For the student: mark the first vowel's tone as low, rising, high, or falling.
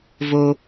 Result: high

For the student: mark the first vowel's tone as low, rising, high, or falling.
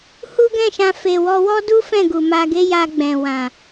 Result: high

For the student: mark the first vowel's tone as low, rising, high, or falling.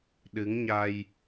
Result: rising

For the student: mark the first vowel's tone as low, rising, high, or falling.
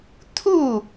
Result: falling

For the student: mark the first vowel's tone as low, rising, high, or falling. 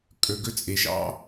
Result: low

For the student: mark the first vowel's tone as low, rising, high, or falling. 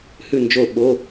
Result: falling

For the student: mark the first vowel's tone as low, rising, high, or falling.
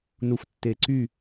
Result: low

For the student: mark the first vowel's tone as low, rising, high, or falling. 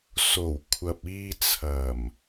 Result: low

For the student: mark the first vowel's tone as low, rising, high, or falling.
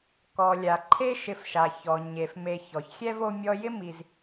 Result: low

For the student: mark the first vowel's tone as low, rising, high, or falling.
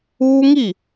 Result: high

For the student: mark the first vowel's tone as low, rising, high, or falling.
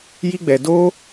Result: high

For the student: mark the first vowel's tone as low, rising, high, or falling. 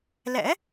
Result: rising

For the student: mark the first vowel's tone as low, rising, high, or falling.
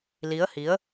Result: rising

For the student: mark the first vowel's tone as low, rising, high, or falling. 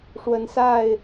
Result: rising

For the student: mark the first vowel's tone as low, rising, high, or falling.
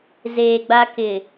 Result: low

